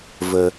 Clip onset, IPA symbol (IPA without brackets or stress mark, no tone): v